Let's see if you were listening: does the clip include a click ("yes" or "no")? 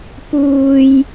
no